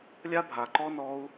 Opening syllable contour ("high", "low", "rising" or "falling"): high